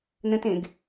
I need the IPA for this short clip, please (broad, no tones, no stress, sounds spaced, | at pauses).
n ə̃ t ẽ ɡ